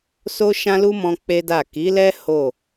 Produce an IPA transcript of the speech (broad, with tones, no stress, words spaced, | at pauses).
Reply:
so˦ʃã˦lu˦mɔ̃˧ k͡pe˦da˦˨ ki˨˦lɛ˦ ho˦˨